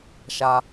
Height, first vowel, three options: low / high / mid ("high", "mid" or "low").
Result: low